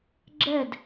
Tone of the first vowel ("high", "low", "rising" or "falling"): falling